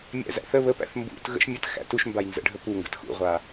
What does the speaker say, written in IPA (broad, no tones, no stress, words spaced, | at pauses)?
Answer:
mʲæ̰zæ̰θə βəpæ̰θ mbṵt ɣə̰ʃ mʲət xæ̰tuʃmbaj nzə̰ɖʱə puŋɡə̰t xṵʁʷa